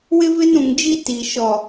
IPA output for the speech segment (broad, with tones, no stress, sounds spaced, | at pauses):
w ɪ˦ v ɪ˦ n ũ˨ ŋ d͡ʒ i˦ t i˨ ʃ ɔ˨